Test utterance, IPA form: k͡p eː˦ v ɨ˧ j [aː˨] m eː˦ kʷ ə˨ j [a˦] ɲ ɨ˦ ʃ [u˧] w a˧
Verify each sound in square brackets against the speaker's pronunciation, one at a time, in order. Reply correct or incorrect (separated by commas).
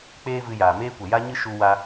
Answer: correct, correct, correct